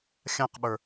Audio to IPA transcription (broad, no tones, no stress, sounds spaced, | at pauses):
xʲ ã q ɓ ə˞